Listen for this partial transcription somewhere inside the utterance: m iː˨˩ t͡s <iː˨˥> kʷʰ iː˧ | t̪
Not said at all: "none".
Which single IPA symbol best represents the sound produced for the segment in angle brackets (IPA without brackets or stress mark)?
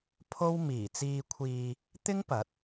iː˧